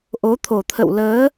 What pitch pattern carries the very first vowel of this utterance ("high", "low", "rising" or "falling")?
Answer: rising